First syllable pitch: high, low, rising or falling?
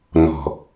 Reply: low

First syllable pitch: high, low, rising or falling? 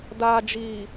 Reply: low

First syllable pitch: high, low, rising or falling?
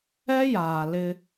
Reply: high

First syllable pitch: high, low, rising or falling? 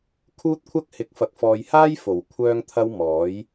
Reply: high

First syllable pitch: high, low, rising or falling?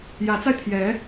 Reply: rising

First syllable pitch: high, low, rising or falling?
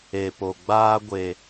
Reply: low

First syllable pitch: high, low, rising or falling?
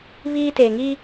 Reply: high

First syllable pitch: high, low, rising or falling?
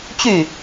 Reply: falling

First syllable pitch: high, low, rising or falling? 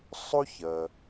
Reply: high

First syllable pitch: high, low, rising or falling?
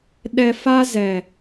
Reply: low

